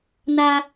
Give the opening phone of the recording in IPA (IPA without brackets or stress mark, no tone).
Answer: n